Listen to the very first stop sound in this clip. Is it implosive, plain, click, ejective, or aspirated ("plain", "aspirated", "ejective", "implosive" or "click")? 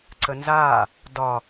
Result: click